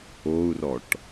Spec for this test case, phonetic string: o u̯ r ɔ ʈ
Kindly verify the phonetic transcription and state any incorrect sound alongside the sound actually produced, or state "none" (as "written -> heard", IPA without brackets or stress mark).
none